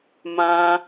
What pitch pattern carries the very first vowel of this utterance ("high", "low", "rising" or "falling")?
low